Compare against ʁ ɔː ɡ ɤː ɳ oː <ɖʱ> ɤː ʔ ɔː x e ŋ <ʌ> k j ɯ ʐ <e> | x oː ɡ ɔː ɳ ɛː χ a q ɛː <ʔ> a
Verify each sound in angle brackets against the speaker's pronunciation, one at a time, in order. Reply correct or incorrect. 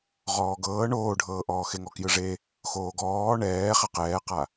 correct, incorrect: ɔ, correct, incorrect: q

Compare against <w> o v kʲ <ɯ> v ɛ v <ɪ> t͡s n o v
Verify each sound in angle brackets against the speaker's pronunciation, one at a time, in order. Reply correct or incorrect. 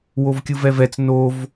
correct, correct, incorrect: ɛ

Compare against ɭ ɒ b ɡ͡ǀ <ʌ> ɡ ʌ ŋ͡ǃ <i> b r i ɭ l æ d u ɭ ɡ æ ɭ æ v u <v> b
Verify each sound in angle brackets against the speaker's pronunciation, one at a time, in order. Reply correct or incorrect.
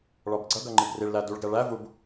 correct, correct, incorrect: none

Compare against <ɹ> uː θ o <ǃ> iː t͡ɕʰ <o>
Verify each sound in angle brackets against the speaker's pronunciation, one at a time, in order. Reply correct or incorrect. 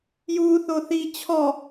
incorrect: j, incorrect: θ, incorrect: ɔ

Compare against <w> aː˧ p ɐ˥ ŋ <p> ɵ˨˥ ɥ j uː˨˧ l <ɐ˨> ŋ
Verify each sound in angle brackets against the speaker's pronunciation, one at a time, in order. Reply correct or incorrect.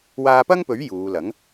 correct, correct, incorrect: ɐ˨˥

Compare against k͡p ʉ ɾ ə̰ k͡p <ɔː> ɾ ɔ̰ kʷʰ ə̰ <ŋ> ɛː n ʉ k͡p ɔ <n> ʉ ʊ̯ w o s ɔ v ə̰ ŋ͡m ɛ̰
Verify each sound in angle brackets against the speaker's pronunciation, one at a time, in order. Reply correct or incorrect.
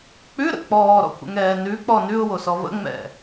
correct, correct, correct

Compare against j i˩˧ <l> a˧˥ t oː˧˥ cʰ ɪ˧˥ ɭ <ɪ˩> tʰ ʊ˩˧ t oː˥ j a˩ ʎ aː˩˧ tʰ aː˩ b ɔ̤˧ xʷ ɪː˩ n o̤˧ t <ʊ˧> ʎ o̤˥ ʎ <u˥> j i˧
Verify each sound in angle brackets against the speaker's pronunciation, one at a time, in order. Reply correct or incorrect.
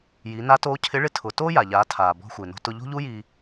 incorrect: n, incorrect: ɪ˧˥, correct, correct

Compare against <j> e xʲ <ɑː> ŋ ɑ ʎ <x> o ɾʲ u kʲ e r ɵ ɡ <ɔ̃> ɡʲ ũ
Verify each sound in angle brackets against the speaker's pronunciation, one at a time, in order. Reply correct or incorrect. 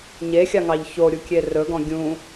incorrect: ɲ, incorrect: ɑ, incorrect: ç, correct

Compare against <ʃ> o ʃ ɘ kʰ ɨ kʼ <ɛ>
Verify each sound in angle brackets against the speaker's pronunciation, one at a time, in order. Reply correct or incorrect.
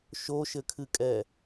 correct, correct

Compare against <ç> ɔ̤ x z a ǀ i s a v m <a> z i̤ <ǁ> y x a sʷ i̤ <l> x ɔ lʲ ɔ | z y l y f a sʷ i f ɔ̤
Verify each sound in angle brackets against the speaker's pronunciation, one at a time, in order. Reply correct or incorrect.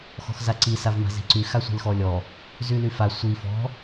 incorrect: x, incorrect: a̤, incorrect: ǀ, correct

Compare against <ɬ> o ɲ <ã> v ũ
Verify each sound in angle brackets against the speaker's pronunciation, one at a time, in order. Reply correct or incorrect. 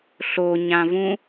correct, correct

